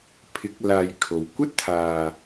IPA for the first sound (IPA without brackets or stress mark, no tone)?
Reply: pʰ